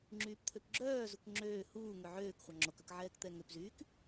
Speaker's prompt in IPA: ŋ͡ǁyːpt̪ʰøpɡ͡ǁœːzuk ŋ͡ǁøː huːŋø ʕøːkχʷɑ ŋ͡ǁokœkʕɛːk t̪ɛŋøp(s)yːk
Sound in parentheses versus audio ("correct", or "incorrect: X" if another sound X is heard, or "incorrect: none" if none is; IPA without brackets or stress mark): incorrect: z